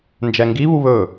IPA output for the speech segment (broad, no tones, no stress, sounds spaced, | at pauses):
n d͡ʒ ɛ ŋ ɡ i β u β ɵ